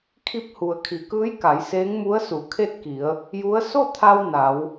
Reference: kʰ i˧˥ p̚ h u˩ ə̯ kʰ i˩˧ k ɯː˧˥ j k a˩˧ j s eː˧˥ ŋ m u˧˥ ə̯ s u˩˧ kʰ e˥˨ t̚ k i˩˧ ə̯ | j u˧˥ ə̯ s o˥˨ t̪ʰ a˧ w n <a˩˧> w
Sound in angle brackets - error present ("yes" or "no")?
no